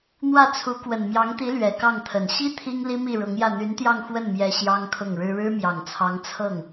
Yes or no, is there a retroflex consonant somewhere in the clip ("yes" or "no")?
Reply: yes